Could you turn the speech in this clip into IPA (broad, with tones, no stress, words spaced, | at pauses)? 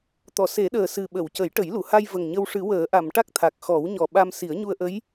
t̪ɔ˨˩˨se˨˩˦ɗəː˨˩ sɨ˨˩ɓə˨˩˨w cə˨˩˦jʈə˨˩˦jlu˨˩˨ha˧j və˨˩ŋɲə˧w ʂɨ˨˩˦wəː˨˩˦ʔa˨˩˨m ʈa˦˥k̚t̪ʰa˨˩k̚xɔ˨˩˦wɲɔ˨˩ ɓa˧m si˨˩˦ə̯ɲu˧ə̯ʔə˧˥j